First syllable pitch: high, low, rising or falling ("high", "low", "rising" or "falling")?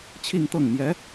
falling